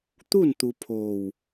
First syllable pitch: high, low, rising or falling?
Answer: falling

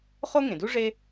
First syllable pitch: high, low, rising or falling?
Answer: high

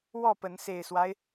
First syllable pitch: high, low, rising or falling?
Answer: falling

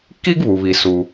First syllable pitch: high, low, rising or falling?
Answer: high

